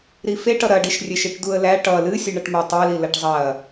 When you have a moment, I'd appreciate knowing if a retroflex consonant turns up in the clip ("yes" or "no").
yes